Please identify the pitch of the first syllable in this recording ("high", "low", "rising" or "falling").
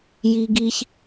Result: high